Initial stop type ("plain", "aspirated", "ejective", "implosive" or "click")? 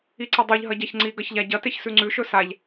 click